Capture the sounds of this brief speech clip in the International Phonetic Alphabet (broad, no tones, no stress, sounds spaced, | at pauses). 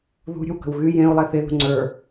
ð ṳ ɾʲ ə̤ w k ə̤ w ɣ y j ẽ u̯ lˠ e θ e ð ṳ ŋ͡ǀ ə˞